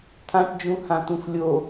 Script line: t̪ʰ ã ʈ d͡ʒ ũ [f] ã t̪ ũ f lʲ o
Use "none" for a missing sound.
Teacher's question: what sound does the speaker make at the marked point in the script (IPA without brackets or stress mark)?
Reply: h